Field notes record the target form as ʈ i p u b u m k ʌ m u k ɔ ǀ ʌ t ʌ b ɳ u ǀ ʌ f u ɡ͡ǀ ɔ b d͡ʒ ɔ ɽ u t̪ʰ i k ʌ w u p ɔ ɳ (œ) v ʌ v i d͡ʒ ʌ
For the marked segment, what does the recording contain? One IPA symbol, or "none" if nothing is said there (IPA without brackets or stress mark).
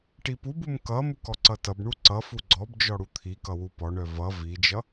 œ